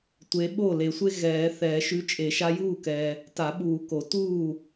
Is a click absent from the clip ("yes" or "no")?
yes